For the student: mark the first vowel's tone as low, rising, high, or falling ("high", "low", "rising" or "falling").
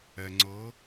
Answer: low